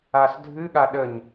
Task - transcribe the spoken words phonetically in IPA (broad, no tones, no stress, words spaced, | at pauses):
asdʱɨ ɠaɗəɲ